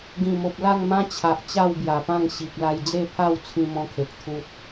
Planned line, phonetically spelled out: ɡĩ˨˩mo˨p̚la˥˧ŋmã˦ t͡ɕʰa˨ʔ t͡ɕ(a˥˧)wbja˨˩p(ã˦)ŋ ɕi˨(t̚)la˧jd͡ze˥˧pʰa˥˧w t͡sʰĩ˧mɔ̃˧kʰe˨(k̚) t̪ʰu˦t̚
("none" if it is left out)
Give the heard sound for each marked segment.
a˥˧, ã˥˧, k̚, k̚

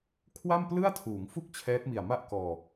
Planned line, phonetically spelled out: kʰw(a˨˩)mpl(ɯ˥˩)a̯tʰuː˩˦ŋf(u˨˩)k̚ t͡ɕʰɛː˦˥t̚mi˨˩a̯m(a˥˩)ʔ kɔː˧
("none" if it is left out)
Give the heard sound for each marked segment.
a˥˩, ɯ˥˩, u˥˩, a˥˩

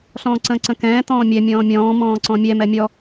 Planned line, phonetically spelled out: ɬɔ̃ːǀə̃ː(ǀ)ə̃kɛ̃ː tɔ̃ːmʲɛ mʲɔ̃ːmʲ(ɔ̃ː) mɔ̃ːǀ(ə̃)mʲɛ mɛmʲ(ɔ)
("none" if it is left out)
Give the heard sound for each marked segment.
ǀ, ɔ̃ː, ɔ̃, ɔ

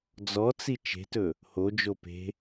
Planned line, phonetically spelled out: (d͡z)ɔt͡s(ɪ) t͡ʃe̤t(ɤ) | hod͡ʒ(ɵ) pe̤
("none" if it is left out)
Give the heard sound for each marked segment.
d͡z, i, ɵ, o

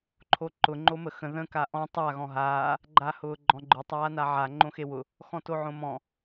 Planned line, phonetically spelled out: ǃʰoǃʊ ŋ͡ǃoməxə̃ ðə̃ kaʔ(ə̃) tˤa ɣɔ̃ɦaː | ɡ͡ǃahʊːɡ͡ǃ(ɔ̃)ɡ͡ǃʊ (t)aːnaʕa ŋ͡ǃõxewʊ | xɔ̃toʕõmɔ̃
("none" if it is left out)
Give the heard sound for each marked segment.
ɔ̃, ɔ̃, tˤ

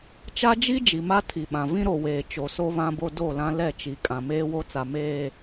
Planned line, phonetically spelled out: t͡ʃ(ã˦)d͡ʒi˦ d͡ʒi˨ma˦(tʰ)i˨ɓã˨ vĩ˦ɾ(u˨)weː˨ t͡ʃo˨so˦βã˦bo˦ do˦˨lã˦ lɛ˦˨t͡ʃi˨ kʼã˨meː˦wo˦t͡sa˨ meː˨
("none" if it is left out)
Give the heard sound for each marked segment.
a˦, tʰ, o˨

